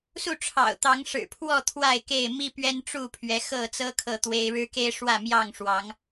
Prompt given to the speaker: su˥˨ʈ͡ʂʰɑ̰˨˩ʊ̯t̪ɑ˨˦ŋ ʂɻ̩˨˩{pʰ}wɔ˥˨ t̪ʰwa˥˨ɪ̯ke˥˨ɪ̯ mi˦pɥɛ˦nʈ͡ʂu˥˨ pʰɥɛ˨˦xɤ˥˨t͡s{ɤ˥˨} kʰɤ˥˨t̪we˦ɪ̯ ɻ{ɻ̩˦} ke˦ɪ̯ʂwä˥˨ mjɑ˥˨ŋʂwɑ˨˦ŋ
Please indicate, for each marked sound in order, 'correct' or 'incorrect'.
correct, incorrect: ɤ˦, correct

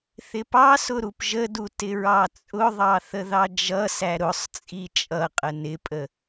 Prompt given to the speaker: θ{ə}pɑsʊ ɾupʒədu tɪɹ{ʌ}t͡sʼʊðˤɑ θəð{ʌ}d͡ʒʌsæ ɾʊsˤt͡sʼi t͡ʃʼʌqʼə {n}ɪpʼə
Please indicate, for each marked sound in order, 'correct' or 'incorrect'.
incorrect: ɪ, incorrect: ɑ, incorrect: ɑ, correct

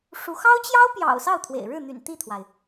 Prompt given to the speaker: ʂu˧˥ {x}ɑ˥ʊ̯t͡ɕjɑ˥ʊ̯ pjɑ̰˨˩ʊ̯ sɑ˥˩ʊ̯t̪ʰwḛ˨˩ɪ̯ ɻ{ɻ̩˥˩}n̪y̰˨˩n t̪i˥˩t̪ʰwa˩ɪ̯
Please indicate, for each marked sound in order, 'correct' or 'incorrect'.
correct, correct

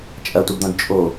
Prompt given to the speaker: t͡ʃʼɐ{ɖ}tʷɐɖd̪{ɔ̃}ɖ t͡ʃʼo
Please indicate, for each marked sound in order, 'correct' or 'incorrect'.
incorrect: none, correct

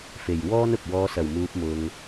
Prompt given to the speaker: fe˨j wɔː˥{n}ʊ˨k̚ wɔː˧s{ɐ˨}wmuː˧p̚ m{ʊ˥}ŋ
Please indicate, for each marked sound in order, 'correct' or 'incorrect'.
correct, correct, incorrect: ʊ˧

